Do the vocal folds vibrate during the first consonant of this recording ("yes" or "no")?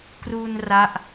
no